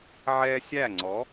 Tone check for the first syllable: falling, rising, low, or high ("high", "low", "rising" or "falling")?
high